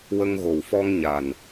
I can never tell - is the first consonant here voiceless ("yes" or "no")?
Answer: no